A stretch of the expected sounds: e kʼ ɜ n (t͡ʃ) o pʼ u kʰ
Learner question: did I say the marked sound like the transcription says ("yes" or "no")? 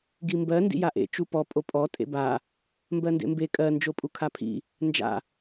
no